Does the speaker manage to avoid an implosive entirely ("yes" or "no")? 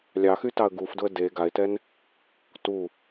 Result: yes